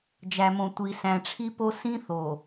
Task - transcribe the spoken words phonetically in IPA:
d͡ʒ æ˨ m õ˨ tʷ i˨ s æ̃˨ ʈ͡ʂʰ i˦ p o˦ s ĩ˦ θ o˨

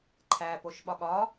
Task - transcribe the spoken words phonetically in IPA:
ǃʰ æ p o ʃ ɓ ɒ ɠ ɒ

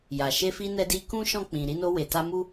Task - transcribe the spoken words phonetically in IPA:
j a˨ ʃ e˧ f i˧ n ɛ˧ d i˧ k ũ˦ ʃ ɔ̃˦˨ k͡p ĩ˨ ɾ i˧ n o˧ w e˨ t a˧ m u˦

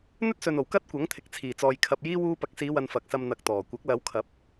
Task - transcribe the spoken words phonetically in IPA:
n̪ ɵ˥ t̚ s ɵ˨ n o˨˩ w k ɐ˥ t̚ kʷ ɐ˨˥ ŋ t̪ʰ ɪ˨˥ k̚ t͡sʰ iː˨˩ t͡s ɔː˨ j kʰ ɐ˨ p̚ j iː˥ w uː˧ p ɐ˨ k̚ s iː˨˧ w ɐ˧ n f ɐ˨ k̚ s ɐ˧ m n̪ ɐ˨˥ k̚ t̪ ɔː˨˩ kʷ ɐ˨˥ k̚ l ɐ˨˧ w kʰ ɐ˨˥ p̚

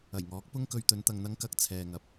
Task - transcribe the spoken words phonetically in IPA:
ɐ˨˩ j ŋ ɔː˨˥ k̚ p ʊ˥ ŋ k ɵ˧ ɥ t̪ ɵ˨˧ n t̪ ɐ˨ ŋ n̪ ɐ˨˧ ŋ k ɐ˨˥ k̚ t͡sʰ ɛː˨ ŋ ɐ˨ p̚

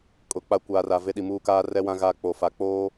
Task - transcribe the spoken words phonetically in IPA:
kʼ ʊ˨ k͡p a˨ kʷ aː˨ r a˨ v e˦ ɗ i˨ m uː˦ k aː˦ r ɛ˦ w ã˦ ɣ a˦˨ k͡p o˨ f a˨ k͡p oː˦

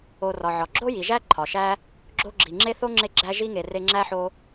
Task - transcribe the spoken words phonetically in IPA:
o˨ r ɒ˩ ʕ ɒ˩ ɡ͡ǁ o˥ j i˩ ʒ æ˥ ǃʰ ɒ˩ ʃ æ˥ | ɡ͡ǁ o˦ ɡ͡ǁ i˩ ŋ͡ǁ e˥ θ o˥ ŋ͡ǁ e˦ ɡ͡ǁ æ˦ ʒ i˥ ŋ e˨ r e˦ ŋ͡ǁ æ˥ ħ o˦

